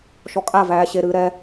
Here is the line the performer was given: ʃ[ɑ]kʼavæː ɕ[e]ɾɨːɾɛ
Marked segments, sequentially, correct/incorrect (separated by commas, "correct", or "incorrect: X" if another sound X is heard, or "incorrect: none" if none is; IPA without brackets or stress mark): incorrect: ɔ, correct